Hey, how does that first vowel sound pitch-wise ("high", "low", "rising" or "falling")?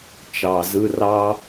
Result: low